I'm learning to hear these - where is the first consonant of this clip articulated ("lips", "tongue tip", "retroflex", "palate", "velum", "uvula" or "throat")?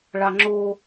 retroflex